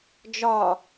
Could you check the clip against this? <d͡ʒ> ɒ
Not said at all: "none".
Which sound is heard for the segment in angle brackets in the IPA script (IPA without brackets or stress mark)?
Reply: d͡ʒ